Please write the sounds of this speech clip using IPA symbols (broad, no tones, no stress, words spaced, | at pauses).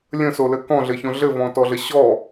lʲə̃solɘ kɔ̃ɮɘçõ ɮɘvɔ̃tɔɮə ɕɔ